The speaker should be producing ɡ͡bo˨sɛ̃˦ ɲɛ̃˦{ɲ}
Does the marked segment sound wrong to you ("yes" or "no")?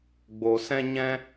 yes